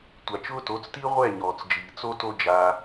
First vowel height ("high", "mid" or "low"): low